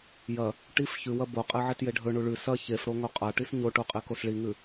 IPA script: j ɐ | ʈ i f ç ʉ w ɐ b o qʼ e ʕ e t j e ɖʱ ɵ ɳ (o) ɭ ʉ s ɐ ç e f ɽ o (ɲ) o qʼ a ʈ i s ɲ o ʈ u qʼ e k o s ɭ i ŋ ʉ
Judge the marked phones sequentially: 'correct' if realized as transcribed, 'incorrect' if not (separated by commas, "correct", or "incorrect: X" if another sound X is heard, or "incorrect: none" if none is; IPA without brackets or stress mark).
incorrect: u, incorrect: ŋ